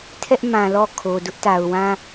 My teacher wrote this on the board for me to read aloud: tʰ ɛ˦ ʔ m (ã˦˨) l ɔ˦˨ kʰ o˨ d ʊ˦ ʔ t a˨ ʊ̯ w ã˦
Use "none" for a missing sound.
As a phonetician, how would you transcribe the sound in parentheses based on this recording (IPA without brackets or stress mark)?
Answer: ã˨